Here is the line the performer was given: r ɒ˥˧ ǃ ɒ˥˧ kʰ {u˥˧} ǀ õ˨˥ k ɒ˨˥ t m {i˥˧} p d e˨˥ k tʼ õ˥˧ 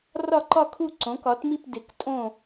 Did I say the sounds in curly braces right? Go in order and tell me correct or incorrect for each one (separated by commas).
correct, correct